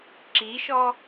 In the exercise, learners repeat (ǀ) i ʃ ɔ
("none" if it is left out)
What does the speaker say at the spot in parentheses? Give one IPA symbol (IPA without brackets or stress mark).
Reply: ǁ